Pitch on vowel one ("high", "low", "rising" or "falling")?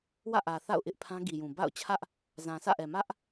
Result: falling